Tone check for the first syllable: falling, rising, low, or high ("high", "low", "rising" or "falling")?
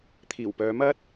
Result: low